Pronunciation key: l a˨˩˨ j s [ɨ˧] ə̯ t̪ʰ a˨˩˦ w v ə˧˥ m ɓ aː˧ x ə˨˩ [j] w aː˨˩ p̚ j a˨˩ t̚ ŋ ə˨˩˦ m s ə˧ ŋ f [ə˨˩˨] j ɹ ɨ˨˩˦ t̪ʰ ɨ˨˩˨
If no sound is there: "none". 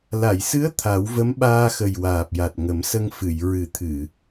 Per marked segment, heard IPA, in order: ɨ˧˥, j, ɨ˨˩˨

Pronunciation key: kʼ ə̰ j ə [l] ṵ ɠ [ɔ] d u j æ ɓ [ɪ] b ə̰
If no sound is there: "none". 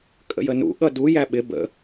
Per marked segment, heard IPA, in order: n, ʌ, ɪ

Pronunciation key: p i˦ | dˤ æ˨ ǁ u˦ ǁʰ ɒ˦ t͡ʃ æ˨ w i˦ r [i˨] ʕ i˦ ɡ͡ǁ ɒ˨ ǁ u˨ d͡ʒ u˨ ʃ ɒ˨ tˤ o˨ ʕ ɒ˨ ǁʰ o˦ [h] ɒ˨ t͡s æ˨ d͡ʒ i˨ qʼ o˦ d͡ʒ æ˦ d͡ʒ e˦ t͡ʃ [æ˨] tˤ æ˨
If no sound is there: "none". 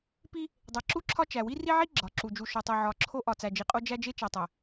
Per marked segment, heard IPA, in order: i˦, ʔ, æ˨

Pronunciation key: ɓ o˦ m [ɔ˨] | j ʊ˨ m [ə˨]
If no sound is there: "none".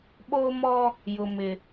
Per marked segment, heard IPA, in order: ɔ˦, ɪ˨

